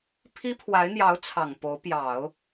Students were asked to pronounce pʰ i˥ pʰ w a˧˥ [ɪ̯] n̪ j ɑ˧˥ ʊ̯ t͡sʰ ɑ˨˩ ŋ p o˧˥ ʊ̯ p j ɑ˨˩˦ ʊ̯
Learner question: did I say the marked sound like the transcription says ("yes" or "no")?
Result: yes